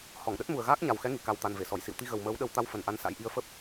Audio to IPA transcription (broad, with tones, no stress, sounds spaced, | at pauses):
h ɔ˧˩ ŋ ɗ ə˦˥ t̚ m u˨˩ ə̯ ɣ aː˦˥ k̚ ɲ a˨˩ w x ɛ˨˦ ŋ i˧˩ k a˨˩ w t̪ a˨˩ n v e˧˩ s ɔ˧˩ j s ḭ˧˨ w t̪ i˧ ɣ ə˨˩ w m əː˨˦ w ɗ ə˨˦ w t̪ a˧ w f ə˨˩ n ʔ a˧ n s a̰˧˥ j ʔ i˨˦ ə̯ f ə˦˥ p̚